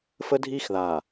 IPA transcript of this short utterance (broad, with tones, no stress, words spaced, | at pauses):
fə˦dʱiː˦xðaː˨